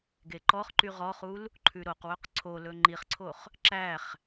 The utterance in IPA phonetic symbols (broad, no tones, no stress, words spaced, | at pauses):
ɡeǃɔχǃy ʁɔχul | ǃʰʉɾoqwɵq ǀʰolɵ ŋ͡ǃiχǀʰoχ | ǁæχ